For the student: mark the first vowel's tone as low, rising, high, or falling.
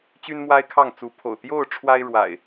high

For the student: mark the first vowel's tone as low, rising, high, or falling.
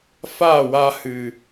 falling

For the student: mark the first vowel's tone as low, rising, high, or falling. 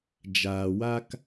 low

